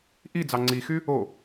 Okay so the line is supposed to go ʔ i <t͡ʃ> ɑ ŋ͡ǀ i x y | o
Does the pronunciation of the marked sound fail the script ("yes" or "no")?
yes